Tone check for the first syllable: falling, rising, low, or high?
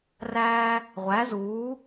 high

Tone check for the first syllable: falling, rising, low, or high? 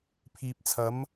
low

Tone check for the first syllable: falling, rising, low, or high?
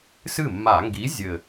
falling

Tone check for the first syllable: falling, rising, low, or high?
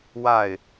falling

